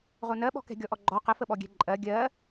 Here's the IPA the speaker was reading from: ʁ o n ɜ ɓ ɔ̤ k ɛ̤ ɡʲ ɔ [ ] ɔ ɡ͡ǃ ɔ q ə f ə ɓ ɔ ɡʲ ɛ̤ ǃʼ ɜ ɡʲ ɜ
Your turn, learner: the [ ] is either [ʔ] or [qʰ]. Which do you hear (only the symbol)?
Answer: ʔ